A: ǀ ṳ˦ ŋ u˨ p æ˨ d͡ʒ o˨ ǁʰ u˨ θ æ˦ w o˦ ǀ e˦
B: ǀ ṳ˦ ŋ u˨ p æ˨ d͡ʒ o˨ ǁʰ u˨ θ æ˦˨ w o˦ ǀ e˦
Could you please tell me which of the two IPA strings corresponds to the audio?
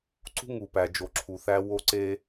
A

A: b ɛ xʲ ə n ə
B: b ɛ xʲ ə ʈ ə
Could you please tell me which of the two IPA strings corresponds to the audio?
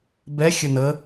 A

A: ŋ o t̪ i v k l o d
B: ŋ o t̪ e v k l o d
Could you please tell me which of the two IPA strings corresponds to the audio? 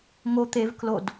B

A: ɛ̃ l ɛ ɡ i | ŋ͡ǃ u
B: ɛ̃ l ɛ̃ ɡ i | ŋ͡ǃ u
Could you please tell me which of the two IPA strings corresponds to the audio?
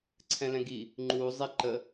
B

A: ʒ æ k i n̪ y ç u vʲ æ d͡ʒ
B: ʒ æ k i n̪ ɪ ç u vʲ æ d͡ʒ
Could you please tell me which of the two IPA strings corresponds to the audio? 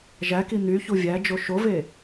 A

